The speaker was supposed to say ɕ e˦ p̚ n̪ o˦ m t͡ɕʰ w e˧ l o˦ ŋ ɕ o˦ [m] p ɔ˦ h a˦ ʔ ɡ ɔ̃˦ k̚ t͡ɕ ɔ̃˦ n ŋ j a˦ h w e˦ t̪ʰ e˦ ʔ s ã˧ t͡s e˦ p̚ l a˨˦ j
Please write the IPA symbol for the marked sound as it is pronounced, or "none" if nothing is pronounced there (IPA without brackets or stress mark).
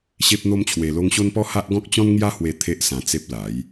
n